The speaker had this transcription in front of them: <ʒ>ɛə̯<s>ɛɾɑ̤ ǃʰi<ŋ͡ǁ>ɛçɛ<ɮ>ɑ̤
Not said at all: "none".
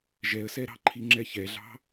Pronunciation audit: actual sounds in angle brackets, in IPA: ʒ, s, ŋ͡ǁ, ɮ

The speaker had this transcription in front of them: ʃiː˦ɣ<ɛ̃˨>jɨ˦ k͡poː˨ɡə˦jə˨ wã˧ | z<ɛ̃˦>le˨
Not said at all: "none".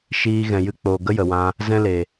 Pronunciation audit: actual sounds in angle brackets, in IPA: ɛ̃˨, ɛ̃˦

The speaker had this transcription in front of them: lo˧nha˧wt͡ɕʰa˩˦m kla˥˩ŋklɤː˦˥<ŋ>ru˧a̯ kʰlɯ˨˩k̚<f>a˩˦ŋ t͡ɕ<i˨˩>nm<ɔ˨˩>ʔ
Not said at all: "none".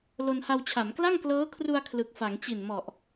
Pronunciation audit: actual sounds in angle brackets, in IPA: kʰ, f, i˨˩, ɔ˨˩

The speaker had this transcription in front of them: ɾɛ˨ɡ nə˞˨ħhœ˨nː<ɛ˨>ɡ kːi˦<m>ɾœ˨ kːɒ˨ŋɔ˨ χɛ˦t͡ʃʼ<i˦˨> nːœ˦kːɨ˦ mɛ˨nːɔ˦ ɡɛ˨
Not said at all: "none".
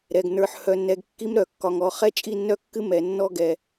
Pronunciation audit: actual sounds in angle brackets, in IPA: ɛ˨, m, i˦˨

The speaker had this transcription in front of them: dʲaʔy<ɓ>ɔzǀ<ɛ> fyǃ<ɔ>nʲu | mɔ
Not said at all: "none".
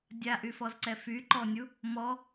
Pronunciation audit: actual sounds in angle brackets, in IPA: f, ɛ, ɔ

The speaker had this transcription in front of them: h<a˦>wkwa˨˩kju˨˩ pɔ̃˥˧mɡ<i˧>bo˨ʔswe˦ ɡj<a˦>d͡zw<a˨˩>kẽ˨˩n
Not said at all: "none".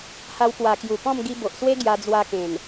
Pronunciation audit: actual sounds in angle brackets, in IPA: a˧, i˧, a˧, a˧

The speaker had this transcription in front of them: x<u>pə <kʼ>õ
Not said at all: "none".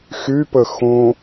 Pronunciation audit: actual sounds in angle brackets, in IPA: y, x

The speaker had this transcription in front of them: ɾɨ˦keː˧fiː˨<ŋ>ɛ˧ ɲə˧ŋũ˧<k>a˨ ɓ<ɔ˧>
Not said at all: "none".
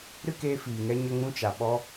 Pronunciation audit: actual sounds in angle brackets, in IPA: ŋ, t͡ʃ, ɔ˧

